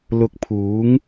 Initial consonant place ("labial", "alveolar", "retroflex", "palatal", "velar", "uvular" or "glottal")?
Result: alveolar